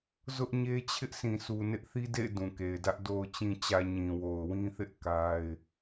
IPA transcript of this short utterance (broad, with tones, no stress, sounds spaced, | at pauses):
z ʊ˦ ʔ ɲ e˦ t͡ɕʰ ɪ˦ ʔ sʰ ĩ˨ s u˨ n ɪ˦ ʔ θ i˦ d ḛ˦˨ ɪ̯ d ũ˨ k e˨ ɪ̯ d ä˦ ʔ d o˨ ʊ̯ t͡ɕ ĩ˨ t͡ɕ ä˨ ɲ ĩ˨ w o˨ ʊ̯ w ĩ˦ θ ɪ˦ ʔ k a˦ ɪ̯